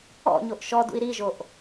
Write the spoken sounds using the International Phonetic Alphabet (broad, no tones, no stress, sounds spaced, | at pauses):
ɔ̰ ɲ o ʔ ʃ ɔ d ṵ i̯ ɾ i ʒ o ʔ